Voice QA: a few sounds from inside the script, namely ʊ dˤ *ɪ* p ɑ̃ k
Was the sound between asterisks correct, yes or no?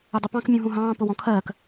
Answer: yes